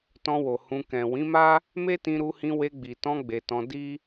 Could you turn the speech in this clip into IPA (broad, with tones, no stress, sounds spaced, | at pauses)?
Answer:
t ɔ̃˧ w o˨ h ũ˧ k ɛ̃˨ w ĩ˨˦ m a˦ | m e˦ t ĩ˧ ɾ u˧ h ĩ˧ w e˧ ɡ͡b i˨ t ɔ̃˧ ɡ͡b e˨ t ɔ̃˧ d i˦